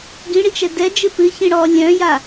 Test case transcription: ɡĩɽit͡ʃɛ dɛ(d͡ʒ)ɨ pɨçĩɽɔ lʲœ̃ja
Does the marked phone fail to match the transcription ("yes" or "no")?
no